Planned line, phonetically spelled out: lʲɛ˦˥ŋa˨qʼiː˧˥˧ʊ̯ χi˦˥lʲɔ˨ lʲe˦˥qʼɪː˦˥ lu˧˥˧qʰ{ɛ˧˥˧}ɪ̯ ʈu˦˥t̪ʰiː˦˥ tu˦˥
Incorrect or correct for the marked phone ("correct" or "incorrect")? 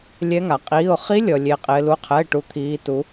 correct